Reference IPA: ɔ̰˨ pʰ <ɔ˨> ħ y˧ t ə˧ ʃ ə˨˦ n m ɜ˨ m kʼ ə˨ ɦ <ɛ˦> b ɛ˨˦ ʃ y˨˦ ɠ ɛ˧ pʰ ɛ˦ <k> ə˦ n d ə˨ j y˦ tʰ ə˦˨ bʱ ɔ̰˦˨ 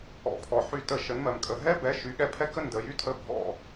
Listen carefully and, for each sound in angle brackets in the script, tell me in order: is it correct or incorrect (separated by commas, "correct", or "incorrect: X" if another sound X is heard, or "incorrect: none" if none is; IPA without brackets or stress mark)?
correct, correct, correct